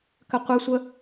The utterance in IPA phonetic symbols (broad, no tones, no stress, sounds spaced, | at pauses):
k ə qʷ ɪ sʷ ə